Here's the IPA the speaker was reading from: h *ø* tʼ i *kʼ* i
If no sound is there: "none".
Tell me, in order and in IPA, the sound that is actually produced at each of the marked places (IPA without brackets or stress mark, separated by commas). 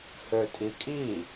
ø, kʼ